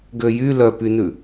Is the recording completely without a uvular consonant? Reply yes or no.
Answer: yes